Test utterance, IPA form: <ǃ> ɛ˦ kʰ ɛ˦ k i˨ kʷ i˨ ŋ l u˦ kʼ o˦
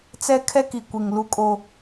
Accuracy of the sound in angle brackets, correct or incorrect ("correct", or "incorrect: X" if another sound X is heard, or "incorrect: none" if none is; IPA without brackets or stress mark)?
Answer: incorrect: t͡s